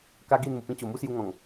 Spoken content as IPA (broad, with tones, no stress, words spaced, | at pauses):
ka˦ɡi˥˧nmu˨˩pĩ˦ t͡ɕo˨˩mu˦sju˧ŋɔ̃˨˩ŋ